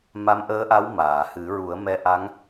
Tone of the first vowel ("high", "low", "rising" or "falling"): rising